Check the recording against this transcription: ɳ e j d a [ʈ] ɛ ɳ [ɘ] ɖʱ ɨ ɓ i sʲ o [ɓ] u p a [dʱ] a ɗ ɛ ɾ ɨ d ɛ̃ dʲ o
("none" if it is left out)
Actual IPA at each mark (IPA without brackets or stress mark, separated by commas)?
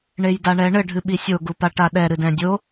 ɳ, ɘ, ɡ, ʈ